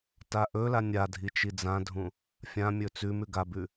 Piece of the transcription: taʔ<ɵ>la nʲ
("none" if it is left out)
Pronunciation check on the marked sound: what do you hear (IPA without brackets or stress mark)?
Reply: ɵ